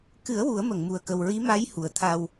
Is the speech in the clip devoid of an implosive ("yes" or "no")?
yes